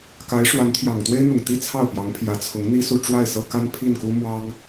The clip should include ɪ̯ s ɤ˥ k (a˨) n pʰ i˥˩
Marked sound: incorrect: a˥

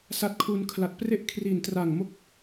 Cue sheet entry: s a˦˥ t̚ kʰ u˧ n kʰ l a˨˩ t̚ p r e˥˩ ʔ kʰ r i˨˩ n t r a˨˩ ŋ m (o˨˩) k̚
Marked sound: incorrect: o˦˥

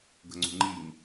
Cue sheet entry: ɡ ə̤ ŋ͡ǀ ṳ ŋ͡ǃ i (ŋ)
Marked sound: correct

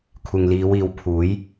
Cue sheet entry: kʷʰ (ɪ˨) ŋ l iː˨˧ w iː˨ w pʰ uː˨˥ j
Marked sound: correct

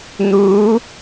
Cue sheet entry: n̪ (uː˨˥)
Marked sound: incorrect: uː˨˧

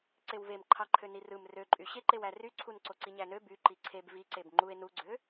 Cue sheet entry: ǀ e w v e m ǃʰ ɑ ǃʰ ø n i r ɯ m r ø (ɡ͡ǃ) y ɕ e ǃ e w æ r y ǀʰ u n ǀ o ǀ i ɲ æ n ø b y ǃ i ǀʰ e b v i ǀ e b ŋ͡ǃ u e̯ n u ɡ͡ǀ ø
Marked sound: incorrect: ǃʼ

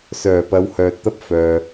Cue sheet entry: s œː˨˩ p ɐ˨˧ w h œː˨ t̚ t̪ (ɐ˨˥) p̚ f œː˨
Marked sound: incorrect: ɐ˥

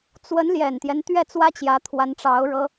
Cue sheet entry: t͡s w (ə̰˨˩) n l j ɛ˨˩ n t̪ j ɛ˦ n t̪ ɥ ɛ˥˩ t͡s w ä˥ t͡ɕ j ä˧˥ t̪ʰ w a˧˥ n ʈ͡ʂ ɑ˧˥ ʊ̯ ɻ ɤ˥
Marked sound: incorrect: ə˧˥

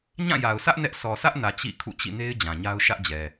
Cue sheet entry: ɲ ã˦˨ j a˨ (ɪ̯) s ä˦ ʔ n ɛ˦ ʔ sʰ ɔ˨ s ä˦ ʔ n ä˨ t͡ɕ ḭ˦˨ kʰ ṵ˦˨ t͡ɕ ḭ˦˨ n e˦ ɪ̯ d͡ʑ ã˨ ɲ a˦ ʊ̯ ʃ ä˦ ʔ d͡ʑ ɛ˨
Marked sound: incorrect: ʊ̯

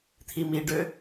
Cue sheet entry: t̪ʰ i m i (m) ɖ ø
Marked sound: incorrect: none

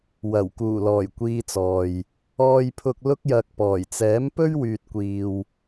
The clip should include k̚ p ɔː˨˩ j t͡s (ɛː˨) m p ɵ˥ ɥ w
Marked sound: incorrect: ɛː˨˥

